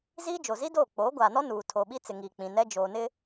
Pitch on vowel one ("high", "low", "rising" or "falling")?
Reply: high